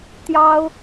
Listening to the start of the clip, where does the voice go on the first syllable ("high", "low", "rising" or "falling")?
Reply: high